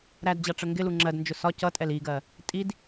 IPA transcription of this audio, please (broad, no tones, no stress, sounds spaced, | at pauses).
ɾ æ d d͡ʑ ɑ ʈ͡ʂ ə ŋ ɡ ɪ l u ŋ͡ǁ ɜ d n d͡ʒ ʊ s ɒ c ʌ tʼ ɛ l i ɡ ɜ | tʼ i d